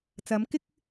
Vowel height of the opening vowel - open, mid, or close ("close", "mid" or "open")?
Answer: open